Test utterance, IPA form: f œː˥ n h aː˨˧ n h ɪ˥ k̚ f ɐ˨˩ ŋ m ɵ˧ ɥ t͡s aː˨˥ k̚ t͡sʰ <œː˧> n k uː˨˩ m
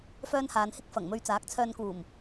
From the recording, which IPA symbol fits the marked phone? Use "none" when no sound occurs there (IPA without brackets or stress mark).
œː˧